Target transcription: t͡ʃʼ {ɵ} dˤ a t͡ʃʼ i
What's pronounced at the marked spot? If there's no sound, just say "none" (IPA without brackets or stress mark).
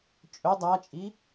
ɵ